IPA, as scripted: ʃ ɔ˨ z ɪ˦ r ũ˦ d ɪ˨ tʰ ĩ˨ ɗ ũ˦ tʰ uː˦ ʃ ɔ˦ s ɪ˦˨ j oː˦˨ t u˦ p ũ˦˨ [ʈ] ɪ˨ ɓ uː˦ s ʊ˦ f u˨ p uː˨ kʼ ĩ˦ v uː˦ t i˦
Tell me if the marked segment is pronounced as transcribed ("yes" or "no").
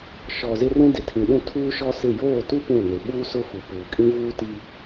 no